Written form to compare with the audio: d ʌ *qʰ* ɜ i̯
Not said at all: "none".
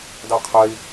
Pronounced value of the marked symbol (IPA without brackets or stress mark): qʰ